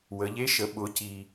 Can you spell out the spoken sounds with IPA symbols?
w ə˩˧ ʎ e˧˥ ʃ ə˩˧ ɓ ʊ˩˧ c i˩

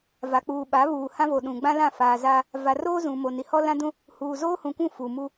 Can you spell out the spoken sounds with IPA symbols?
v a˨ k͡p uː˨ ɓ a˨˦ β uː˨ h ã˦ v o˨ ɗ ũ˨ ɡ͡b ã˦ l ã˦˨ f aː˨ z aː˦ | v a˨ r oː˦ z ũ˨ m o˨ n i˨ h ɔ˦ l ã˦ d ũ˦ | h uː˨ z oː˦ h ũ˨ kʷ ũ˦˨ f u˨ m u˦

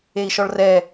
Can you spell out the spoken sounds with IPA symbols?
e i̯ ʃ ɔ ɭ r ɛ

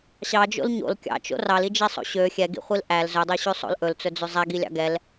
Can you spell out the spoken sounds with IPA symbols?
ɕ ɑ d͡ʒ o̰ l ɲ o̰ l kʲ ɑ̰ t͡ʃ o̰ r ɑ l i d͡ʒ i sˤ o̰ ɕ ø xʲ ɛ ɡ ḭ χʷ i l ʔ æ l z ɵ dˤ ø ɕ ʉ sˤ o̰ l ʔ ɵ l t͡s ɵ d͡z ʉ zˤ ɛ ɡ i lʲ ɑ̰ ɡ ɛ l

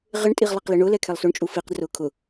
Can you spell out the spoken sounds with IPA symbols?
ʁ ɪ ɳ tʼ i ʁ lˠ i q l i ɳ ʊ l ɛ kʰ ɛ lˠ s o ɳ t͡ʃʼ u f i q d r ʊː kʰ ʊ

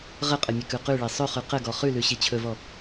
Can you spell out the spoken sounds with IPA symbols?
ʁ ə qʼ ə mʲ ə k ʉ q ʉ ɭ e sˤ ɵ χ ʉ q ə ɡ ɔ χ ʉ l ʉ ɕ i t͡ɕʰ ɵ v ɔ

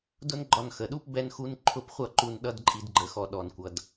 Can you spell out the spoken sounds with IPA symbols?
d ʊ˦ n ɡ͡ǃ ɒ˧ n x ə˨ ɗ u˦ p b ɛ˦ n x u˦ n ǃʰ ʊ˦˨ p χʷ ʌ˦˨ ǃ u˧ n ɗ ʌ˧ d ǃʼ i˧ d ɡ͡ǃ ə˧ x ɔ˧ ɗ ɔ˨ n kʷ ʌ˨ d

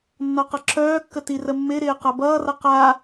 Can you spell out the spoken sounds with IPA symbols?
nː ɔ q ʌ ǁʰ œː kː ə t i r ə mː ɪ ɾ ɪː q a b ʌː r ʌ q a

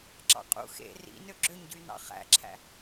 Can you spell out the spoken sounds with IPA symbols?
ǁ ɑ̰ qʼ ṵ x ḛ r ḭ n ø ɡ͡ǁ ø ɲ ɟ y n ɑ̰ χ æ̰ ǁʰ æ̰

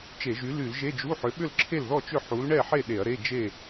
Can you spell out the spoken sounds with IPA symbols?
t͡ʃ e˧˩˧ ʒ y˨˥ l y˧˩˧ l ʒ e˧˥˧ d͡ʒ u˧˥˧ ħ ʏ˨˥ ɓ ʏ˥˨ l ǁʰ e˥˨ l ð ɔ˥˨ t͡ʃ ʏ˥˨ ħ u˨˥ l ɳ ɛ˥˨ ħ e˥˨ ɗ e˧˩˧ ɐ̯ ɾ e˧˥˧ d͡ʒ e˥˨

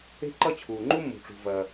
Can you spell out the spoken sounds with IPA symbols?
e̤˥ ǃ ʌ˥ t͡ɕʰ uː˩ ŋ͡ǃ u˥ mː ṳ˩ ʈ͡ʂ ṳ˩ v ɐː˩

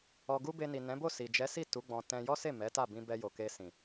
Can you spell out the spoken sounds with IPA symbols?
ɔ˧ ɡ u˦ b e˧ n i˨ n ɛ̃˨˦ b o˦˨ s i˨ d͡ʒ ɛ˨˦ s i˦˨ t u˨˦ ɡ͡b ɔ̃˧ t ɛ̃˧ j ɔ˦ s e˦˨ m ɛ˨˦ t a˦˨ b ĩ˧ b ɛ˧ j o˨ k e˧ s ĩ˨

